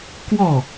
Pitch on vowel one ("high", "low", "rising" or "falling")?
falling